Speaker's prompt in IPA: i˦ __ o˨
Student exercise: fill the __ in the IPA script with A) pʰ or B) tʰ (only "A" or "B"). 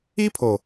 A